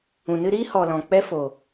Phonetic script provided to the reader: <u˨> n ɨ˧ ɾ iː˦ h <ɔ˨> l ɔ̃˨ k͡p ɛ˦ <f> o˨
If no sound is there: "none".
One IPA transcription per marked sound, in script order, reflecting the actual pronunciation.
ũ˨, ɔ˨, f

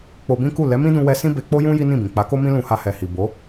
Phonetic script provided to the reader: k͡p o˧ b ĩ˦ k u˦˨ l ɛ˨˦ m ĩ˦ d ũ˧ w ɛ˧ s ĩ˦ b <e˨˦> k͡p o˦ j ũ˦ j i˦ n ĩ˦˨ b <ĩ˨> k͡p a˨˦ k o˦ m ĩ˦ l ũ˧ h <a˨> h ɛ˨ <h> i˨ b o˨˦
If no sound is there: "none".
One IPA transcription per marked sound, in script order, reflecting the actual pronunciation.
e˧, ĩ˨, a˧, h

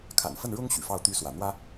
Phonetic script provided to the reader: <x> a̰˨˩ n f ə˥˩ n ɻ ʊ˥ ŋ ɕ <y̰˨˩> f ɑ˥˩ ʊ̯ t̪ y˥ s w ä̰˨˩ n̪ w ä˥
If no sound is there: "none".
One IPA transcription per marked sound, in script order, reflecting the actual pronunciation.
kʰ, y̰˨˩

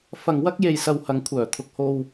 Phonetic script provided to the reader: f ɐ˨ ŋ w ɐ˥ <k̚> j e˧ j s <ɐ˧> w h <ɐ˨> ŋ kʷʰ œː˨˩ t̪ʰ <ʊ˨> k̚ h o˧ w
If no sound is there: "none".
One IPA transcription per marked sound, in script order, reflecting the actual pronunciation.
k̚, ɐ˧, ɐ˨˧, ʊ˨

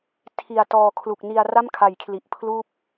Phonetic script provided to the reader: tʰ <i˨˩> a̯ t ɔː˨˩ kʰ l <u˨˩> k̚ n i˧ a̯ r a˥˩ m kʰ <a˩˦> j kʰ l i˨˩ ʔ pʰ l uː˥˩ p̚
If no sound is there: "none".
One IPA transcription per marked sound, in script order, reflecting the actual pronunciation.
i˨˩, u˨˩, a˩˦

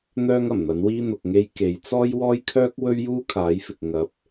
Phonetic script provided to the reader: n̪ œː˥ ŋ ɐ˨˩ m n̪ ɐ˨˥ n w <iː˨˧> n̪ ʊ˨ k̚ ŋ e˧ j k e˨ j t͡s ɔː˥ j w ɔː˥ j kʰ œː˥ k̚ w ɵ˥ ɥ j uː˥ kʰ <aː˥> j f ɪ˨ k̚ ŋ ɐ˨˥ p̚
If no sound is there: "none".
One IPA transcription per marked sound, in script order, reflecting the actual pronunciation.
iː˥, aː˨˥

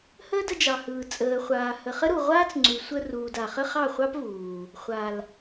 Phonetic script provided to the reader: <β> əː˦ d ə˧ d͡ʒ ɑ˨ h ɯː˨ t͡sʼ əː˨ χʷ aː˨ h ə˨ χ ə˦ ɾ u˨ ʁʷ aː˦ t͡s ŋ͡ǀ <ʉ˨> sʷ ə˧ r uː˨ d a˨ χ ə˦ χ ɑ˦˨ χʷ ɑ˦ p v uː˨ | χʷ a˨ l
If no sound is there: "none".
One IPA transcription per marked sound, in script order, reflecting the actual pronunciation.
h, ʉ˨

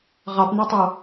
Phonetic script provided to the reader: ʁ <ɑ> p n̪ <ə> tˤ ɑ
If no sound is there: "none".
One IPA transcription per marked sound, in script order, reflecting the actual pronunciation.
ɑ, ɛ

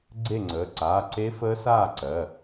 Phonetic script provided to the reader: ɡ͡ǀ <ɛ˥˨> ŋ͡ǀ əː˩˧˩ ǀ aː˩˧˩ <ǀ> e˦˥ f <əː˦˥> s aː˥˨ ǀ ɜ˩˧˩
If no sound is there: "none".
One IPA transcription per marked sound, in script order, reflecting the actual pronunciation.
e˥˨, ǀ, əː˦˥

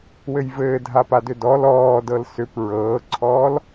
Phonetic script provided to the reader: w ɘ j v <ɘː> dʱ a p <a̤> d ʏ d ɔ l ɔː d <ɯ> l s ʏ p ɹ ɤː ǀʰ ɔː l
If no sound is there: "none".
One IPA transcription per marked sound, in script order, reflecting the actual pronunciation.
ɘː, a, ɤ

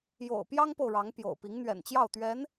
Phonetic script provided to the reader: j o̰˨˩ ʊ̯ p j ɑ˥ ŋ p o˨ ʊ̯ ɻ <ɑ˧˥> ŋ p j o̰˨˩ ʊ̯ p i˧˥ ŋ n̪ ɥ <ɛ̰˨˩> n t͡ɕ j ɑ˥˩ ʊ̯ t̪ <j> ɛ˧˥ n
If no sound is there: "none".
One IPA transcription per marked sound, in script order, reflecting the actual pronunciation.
ɑ˧˥, ɛ̰˨˩, ɥ

